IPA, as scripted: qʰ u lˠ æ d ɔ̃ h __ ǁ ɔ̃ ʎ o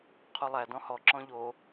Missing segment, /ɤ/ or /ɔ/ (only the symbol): ɔ